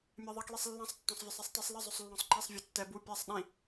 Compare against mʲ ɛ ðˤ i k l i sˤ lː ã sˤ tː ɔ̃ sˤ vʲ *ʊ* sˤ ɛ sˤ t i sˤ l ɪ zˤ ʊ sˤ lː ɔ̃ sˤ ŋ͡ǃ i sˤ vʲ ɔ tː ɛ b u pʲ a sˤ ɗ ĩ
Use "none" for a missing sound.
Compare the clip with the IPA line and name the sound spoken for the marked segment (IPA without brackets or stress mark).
ɔ